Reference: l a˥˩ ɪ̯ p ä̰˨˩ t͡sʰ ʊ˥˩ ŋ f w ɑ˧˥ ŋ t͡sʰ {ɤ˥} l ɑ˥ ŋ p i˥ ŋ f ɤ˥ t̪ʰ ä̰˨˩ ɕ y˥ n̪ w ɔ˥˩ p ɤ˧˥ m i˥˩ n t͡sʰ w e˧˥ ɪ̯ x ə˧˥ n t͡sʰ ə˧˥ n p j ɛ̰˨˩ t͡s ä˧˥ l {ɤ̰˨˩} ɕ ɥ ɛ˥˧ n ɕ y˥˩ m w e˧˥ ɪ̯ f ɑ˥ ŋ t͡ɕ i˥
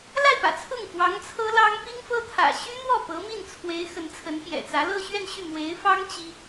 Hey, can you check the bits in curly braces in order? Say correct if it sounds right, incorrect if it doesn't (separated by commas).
correct, incorrect